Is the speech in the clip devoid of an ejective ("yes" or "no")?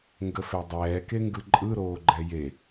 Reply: no